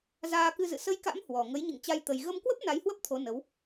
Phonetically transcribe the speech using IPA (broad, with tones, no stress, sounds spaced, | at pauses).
z aː˧ k ɨ˧ z ɨ̰˧˨ s ə˧ j k a̰˧˥ m h w ɔ˨˩ ŋ ə˨˦ j ɲ ɨ̰˧˨ ŋ t͡ɕ a˧ j t̪ ə˧ j ɣ ə˧ m k w ə˦˥ p̚ n a˨˦ j h w ə˦˥ p̚ t̪ʰ o˨˦ n ə˨˦ w